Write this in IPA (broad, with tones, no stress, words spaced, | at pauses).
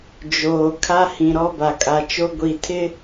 d͡ʒoː˨ kʰa˦hĩ˨ ɾɔ˦ba˨kʼa˨t͡ʃo˦ ɡʷi˨tʰɪ˦